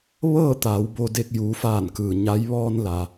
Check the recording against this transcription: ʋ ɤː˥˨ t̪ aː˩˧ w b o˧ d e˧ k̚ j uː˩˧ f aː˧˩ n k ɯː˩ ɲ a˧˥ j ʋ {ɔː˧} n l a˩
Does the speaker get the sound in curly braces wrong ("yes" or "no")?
no